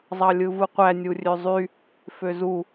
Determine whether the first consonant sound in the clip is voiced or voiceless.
voiced